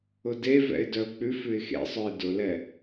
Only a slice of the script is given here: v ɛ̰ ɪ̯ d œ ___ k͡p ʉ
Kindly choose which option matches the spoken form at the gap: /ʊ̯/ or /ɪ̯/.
ʊ̯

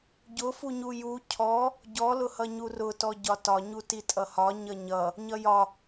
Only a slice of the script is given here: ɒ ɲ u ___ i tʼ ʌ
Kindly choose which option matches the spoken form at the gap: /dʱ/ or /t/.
t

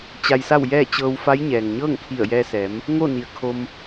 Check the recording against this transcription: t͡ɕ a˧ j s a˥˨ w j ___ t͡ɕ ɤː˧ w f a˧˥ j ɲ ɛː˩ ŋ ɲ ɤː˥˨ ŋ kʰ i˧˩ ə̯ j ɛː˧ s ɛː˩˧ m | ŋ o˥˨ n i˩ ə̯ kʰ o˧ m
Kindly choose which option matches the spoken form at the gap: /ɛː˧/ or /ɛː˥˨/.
ɛː˥˨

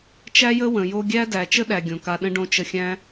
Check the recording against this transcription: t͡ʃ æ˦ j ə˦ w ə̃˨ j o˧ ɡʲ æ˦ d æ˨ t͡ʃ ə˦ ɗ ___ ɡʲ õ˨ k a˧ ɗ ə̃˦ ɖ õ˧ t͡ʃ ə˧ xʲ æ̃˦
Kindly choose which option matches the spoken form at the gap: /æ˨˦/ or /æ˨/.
æ˨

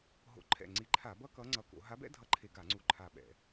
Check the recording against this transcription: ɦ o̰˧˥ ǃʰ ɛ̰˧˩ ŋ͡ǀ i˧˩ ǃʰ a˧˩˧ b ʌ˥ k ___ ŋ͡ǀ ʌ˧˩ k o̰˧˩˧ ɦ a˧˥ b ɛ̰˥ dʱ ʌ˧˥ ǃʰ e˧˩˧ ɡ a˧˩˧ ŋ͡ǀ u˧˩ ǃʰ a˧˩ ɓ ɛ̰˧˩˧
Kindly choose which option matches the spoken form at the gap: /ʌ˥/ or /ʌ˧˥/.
ʌ˧˥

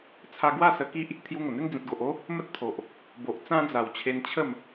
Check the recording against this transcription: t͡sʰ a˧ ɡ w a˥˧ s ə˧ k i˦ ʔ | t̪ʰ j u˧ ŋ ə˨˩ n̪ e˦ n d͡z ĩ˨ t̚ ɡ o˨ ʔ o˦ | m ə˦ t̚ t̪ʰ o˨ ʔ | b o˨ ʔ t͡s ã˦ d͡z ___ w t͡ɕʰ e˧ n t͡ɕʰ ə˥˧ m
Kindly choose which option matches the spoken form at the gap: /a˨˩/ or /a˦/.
a˨˩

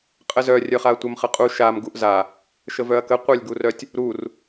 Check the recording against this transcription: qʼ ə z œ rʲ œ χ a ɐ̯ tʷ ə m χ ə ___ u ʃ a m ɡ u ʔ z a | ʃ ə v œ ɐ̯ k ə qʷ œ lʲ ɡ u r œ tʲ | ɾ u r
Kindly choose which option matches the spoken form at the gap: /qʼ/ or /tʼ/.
qʼ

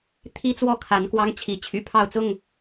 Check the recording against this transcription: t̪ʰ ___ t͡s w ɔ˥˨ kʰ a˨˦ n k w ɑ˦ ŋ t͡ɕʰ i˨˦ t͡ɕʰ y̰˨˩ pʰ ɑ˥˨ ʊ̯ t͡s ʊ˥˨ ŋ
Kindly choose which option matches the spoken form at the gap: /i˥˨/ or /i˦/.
i˦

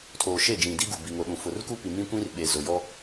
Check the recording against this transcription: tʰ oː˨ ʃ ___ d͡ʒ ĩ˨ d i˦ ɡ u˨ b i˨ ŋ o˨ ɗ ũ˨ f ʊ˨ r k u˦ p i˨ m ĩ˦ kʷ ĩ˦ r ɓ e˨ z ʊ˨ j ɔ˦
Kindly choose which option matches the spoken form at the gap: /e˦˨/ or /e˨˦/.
e˦˨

